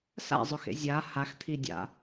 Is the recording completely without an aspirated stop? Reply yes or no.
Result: no